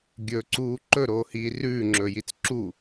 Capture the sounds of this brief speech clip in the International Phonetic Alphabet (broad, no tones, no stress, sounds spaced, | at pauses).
ɡʲ ɵ ǀ uː ǃ ɵ ɾ oː h iː r ʉː ŋ͡ǁ ɵː j i t͡s ǁ u